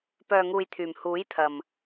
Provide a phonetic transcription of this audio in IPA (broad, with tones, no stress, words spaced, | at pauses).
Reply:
pœː˨ŋuː˨jt̪ʰyː˨˩m huː˨˥jt̪ʰɐ˨m